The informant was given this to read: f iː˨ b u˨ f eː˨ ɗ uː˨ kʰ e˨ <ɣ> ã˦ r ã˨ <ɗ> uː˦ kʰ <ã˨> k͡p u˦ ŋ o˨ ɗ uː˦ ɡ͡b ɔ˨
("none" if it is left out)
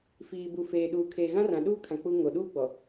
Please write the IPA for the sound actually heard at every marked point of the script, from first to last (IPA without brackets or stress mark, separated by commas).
ɣ, ɗ, ã˨